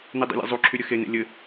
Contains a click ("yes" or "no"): yes